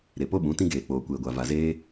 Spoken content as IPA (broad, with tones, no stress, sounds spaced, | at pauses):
ɾ e˨ p o˦ ɓ ũ˨˦ t ĩ˦ ɡ eː˨ k͡p oː˨ kʷ eː˨ ɡʷ a˨ v a˨ z eː˦